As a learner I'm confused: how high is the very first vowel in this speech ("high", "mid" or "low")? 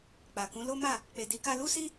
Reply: low